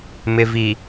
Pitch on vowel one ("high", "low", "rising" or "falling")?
low